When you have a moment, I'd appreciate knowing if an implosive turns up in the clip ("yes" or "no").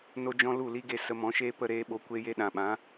yes